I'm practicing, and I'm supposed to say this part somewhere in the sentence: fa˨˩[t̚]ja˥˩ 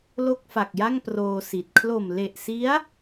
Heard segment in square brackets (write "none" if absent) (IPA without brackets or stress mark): k̚